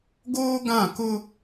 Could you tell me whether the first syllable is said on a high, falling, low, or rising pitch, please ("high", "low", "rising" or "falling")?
high